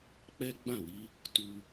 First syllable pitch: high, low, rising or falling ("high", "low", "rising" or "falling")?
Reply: high